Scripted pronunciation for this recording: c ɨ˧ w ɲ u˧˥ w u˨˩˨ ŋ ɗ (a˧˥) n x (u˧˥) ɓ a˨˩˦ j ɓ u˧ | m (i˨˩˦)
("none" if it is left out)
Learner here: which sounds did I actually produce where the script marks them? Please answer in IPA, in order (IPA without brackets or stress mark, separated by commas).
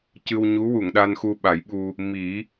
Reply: a˧, u˧, i˨˩˦